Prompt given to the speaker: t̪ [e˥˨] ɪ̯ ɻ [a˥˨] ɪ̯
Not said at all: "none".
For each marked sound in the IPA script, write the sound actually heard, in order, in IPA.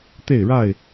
e˥˨, a˥˨

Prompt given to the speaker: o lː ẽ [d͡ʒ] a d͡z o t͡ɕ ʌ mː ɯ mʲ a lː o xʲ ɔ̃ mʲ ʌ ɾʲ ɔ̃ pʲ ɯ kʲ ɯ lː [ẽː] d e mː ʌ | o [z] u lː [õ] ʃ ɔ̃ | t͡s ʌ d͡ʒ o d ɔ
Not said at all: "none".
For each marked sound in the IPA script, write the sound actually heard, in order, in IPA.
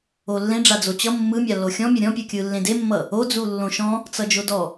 ɖ͡ʐ, ẽ, d͡z, õ

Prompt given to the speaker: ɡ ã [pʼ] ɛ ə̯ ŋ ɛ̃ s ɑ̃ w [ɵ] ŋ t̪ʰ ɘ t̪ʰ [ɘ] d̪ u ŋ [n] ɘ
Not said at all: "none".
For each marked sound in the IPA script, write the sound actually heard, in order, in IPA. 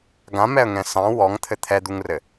m, ɔ, ɛ, r

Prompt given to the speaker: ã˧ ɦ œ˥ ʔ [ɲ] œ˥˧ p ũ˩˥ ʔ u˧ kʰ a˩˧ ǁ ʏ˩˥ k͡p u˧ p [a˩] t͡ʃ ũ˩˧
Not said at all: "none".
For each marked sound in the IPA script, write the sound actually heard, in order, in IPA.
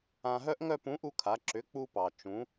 ŋ, ɑ˩

